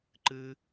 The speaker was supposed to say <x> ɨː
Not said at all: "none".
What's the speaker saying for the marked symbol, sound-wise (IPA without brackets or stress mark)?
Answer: ǃ